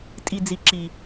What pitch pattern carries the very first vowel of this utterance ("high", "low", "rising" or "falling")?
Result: low